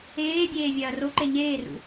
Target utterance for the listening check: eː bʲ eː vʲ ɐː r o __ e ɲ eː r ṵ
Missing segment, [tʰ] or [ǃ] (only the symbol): ǃ